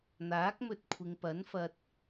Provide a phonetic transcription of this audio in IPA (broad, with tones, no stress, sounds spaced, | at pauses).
n̪ aː˨˥ k̚ m ɵ˧ t̚ kʷʰ ɪ˨ ŋ p ɐ˨˥ n f ɐ˧ t̚